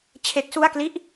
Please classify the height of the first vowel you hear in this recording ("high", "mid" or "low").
mid